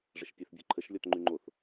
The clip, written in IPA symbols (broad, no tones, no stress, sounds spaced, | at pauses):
ʐ ə ʃ pʲ e θ bʲ ɔ̤ ǃʰ ə ʃ lʲ ɔ t ŋ͡ǃ y ŋ͡ǃ o θ